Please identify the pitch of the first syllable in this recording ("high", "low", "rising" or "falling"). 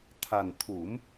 low